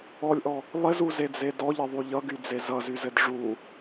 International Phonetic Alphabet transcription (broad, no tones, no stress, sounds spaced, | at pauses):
ɔ lʲ ʔ ɔ | lˠ ɪ z u z e d͡z e d ɔ ʎ ɘ ðˤ y ʎ ʌ ɡ y d͡z e z ʌ z y z ɘ d ʐ u